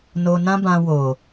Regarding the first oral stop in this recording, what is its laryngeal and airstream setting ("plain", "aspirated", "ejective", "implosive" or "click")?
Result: plain